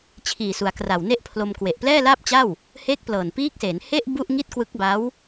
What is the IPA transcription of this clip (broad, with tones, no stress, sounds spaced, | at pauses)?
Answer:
t͡ɕʰ iː˨˩ s u˩˦ a̯ k r a˨˩ w n e˥˩ ʔ pʰ l o˧ m k w e˨˩ ʔ p l ɛː˥˩ l aː˥˩ p̚ t͡ɕ a˥˩ w | h e˦˥ k̚ p l ɤː˨˩ n p iː˦˥ k̚ s e˩˦ n h e˥˩ ʔ b u˥˩ ʔ ŋ i˥˩ t̚ k w ɯ˦˥ k̚ b a˦˥ w